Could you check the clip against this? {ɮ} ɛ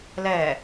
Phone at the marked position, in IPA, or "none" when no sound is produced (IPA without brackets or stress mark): l